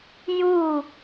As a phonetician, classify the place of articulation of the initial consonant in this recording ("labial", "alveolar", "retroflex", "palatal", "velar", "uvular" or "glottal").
palatal